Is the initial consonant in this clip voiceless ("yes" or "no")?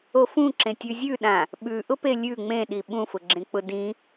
yes